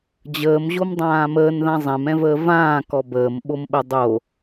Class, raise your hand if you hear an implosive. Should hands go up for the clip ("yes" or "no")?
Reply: yes